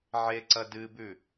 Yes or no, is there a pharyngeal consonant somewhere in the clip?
yes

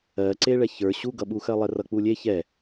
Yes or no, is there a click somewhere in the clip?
yes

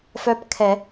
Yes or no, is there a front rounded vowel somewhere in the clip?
yes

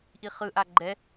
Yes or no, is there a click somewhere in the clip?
yes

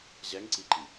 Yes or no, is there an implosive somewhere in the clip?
no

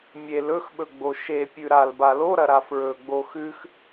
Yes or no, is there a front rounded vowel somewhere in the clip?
no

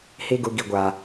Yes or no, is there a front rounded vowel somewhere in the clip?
no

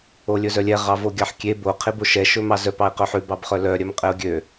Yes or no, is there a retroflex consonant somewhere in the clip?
no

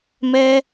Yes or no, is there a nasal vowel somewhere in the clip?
no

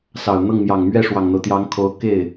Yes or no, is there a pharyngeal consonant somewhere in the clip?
no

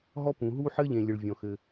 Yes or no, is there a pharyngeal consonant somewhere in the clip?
yes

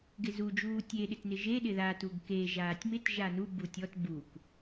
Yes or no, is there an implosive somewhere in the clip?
yes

